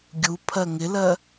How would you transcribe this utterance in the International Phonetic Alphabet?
ɡʲ u pʰ ɜ ŋ ɪ l ɜ

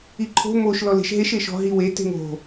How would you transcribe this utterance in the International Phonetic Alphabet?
i ǃʰ o̤ m o ʃ l ɔ l e̤ ʃ ɦ e ʃ e ʃ ɔ̤ ɦ i w e t e̤ ŋ o̤

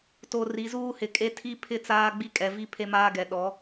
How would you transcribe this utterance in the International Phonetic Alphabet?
t o˨ r i˨˦ z uː˦ h ɪ˨˦ kʼ e˦ tʰ i˦ pʰ ɪ˦˨ t͡s aː˦ ɡ͡b i˦ kʼ ɛ˨ v i˦ pʰ e˦ m aː˦ ɡ ɛ˨ ɗ ɔ˨˦

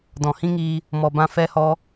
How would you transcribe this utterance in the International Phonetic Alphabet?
d ɔ̃˨ h ĩ˦ ŋ iː˧ | m ɔ˨ b ã˧ f ɛ˧ h ɔ˧

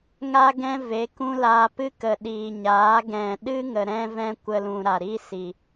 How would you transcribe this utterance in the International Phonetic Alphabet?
ŋ a˧ ɡ ɛ̃˦ v e˨˦ k ũ˦ l aː˧ p ɨ˦ k ə˨ ɗ iː˨ ɲ aː˨˦ ɡ ɛ̃˨ ɗ ɨ˦ ŋ ə˧ ɾ ɛ̃˦ v ɛ̃˦ kʷ ə˦ l ũ˧ ɾ a˨ ɾ i˦ s i˨

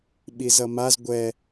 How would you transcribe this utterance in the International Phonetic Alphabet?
ɓ i z ʌ m a z ɡʷ ɛ

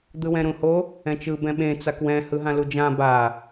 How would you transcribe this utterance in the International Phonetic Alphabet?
d̪ ɯ w ɛ̃ ɾ ũ h o | ɛ̃ t͡ʃ ɯ b ɛ̃ ɓ ẽ t͡s a k w ɛ̃ h ɯ ɦ ã l u d͡ʒ ã b a

